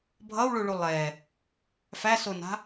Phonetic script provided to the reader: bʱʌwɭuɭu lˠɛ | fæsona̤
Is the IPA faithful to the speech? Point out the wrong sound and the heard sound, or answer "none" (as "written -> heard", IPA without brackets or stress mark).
none